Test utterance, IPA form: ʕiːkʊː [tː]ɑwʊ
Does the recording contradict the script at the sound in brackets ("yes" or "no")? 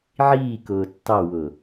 no